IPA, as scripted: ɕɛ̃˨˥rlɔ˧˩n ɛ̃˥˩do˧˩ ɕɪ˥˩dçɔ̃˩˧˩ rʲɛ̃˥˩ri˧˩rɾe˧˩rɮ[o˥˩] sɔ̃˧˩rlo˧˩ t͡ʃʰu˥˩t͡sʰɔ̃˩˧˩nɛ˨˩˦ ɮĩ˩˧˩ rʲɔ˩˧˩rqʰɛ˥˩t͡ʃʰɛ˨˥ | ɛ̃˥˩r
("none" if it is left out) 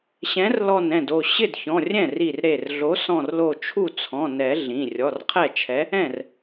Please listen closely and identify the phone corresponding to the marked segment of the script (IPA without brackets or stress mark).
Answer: o˨˥